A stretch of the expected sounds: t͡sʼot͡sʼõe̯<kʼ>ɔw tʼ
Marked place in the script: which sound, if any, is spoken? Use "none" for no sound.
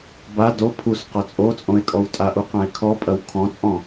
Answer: kʼ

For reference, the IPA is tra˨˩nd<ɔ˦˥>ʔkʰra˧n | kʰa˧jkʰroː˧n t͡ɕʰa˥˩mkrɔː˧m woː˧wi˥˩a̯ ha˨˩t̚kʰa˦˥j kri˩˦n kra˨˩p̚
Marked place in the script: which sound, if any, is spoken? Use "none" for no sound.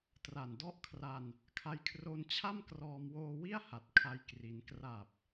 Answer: ɔ˥˩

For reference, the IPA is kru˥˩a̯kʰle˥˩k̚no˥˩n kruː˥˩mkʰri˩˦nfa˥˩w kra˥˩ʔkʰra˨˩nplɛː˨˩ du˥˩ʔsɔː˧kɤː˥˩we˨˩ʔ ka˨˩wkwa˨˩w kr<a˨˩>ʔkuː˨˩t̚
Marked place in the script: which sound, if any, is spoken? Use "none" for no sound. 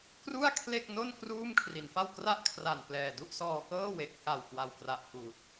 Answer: a˨˩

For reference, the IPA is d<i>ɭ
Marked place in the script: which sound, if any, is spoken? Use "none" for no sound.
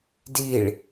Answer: i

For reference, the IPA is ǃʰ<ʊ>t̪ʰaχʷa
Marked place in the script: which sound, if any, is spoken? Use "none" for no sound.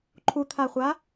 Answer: u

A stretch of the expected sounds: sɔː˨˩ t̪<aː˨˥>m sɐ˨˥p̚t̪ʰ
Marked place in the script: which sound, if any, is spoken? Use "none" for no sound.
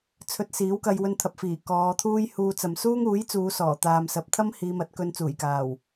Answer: aː˨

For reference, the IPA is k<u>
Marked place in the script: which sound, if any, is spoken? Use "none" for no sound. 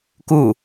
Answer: u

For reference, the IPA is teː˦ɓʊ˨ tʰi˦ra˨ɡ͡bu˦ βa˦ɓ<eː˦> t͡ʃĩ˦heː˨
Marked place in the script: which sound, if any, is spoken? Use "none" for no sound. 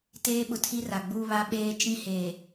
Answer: eː˦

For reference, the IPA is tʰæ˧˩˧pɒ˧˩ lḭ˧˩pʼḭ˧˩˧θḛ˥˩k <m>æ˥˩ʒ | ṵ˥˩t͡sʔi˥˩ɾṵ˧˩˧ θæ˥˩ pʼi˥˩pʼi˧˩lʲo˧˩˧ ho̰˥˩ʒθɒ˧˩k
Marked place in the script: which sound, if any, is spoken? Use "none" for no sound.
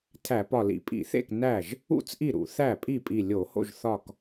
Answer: n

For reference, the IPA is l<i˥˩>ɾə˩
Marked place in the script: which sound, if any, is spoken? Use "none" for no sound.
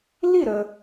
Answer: i˥˩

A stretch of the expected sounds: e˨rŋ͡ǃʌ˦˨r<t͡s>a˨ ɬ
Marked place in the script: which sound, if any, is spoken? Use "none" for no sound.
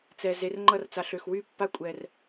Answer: t͡s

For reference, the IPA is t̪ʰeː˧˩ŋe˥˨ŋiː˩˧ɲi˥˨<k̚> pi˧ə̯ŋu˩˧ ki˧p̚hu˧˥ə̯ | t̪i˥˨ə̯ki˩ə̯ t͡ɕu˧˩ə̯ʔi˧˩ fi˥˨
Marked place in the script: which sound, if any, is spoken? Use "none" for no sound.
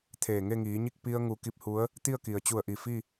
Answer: k̚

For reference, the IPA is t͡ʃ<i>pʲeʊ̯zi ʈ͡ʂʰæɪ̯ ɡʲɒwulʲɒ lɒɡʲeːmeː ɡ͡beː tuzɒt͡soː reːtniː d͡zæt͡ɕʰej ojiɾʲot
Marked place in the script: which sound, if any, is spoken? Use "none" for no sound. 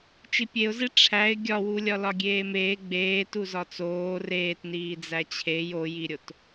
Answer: i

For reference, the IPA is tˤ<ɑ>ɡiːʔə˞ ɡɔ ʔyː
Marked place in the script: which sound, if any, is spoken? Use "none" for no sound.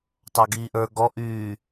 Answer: ɑ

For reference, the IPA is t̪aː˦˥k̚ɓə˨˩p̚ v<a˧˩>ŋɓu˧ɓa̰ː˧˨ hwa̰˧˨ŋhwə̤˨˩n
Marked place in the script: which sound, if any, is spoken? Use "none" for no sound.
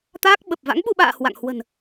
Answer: a̰˧˥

